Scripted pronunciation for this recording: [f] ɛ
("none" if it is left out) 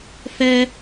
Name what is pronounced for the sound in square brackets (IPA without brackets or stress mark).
f